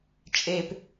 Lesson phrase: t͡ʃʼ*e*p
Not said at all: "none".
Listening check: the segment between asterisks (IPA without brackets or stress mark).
e